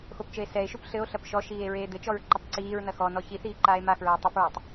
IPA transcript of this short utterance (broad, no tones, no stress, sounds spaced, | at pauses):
x o p t͡ʃ ɘ e̯ s ɛ e̯ ʃ u p ɬ ɘ o̯ ɬ ɐ p ʃ ɔ ʃ iː e̯ ɹ eː d̪ ɘ t͡ʃ ɔ ɹ ǃ ɘ tˤ ǀ iː ɹ n ɐ x ɔ n ɔ ç i θ iː ǃ aː e̯ m a x ɹ ɘ e̯ tˤ ɛ p ɹ ɐ tˤ